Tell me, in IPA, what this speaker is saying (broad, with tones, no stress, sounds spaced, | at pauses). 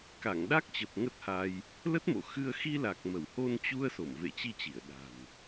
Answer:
k a˧˩ ŋ ɗ a˦˥ k̚ t͡ɕ ə˨˩ p̚ ŋ ə˦˥ t̚ h a˧ j | l ə˦˥ t̚ m o̰˧˨ x ɨ˧ ə̯ x i˧ l a˨˩ k̚ m ə˧˩ w h o˧ n t͡ɕ u˧ ə̯ s o˧˩ m v ḛ˧˨ t͡ɕ i˧ t͡ɕ i˧˩ ə̯ ɗ a̤˨˩ m